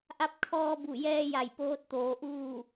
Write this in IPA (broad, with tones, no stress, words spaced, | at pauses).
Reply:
ʔa˧˥p̚kʰɔː˧bu˧˩jɛː˧ ja˧˩jpoː˧˥t̚t̪oː˩˧ ʔuː˥˨